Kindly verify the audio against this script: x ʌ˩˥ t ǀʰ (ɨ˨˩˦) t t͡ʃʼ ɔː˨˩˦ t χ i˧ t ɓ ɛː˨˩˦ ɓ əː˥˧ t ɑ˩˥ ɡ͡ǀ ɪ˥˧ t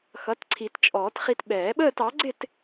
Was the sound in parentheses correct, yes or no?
no